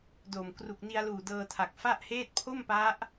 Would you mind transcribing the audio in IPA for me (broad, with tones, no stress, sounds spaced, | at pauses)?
d o˨˩ m k r u˨˩ k̚ n i˧ a̯ l uː˨˩ d ɤː˧ tʰ a˨˩ k̚ f a˥˩ ʔ h eː˥˩ t̚ pʰ o˥˩ m p a˦˥ ʔ